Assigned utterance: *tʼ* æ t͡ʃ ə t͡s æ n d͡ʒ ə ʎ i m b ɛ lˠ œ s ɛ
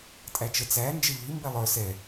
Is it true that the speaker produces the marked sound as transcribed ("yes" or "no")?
yes